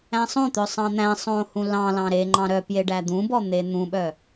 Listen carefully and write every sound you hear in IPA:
æ̃ sˤ õ t̪ œ sˤ ɑ̃ n̪ æ̃ sˤ õ h ũ l ɑ̃ l ɑ̃ ɾ e ŋ͡ǃ ɑ̃ ɾ œ p j e ɖ æ d̪ ũ b ɔ n̪ e n̪ ũ ɓ œ

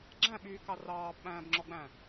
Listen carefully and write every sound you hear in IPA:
ɡ͡ǁ æ̃ ɓ yː k ɑ r ɑː b ɓ æ̃ː b ŋ͡ǁ ɔ ɡ͡b æ̃

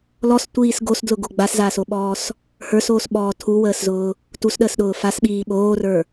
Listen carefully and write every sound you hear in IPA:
l ɔ s tʷ iː s ɡ o s d l ʊ ɡ o ɡ͡b a s z aː s o ɓ ɔː s | h ə˞ s oː s ɓ ɔː tʰ u w əː s z ʊː | t u s ɗ əː s ɗ ʊː f a s ɓ iː ɓ oː r ə˞

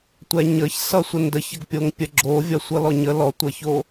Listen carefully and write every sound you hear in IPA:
tʷ ɛ ɲ ə ç s ʌ sʷ ə n d ə ç ə ɡ pʲ o ŋ pʲ ə ɡ͡ǁ o vʲ ʌ sʷ ʌ l ɔ ɲ ə l ɔ tʷ ʌ ç o

